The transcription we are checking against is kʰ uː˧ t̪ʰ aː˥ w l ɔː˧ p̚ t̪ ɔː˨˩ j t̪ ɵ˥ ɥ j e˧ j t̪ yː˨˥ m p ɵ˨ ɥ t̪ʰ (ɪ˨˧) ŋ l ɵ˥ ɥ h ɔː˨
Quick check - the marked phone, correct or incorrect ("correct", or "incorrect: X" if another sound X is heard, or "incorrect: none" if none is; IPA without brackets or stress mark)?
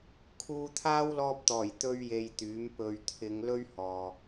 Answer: correct